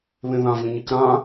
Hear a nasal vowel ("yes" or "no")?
yes